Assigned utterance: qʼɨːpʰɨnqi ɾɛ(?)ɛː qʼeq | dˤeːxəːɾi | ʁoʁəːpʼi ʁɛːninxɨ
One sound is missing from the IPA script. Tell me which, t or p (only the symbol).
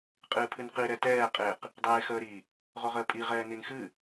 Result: t